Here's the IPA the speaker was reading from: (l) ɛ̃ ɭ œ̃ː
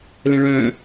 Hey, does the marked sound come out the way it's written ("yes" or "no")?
yes